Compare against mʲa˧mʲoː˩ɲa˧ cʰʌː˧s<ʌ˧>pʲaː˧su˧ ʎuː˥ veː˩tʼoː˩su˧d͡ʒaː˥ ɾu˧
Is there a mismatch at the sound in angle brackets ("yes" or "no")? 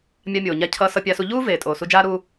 no